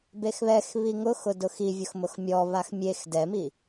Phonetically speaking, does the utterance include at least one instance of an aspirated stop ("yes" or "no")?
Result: no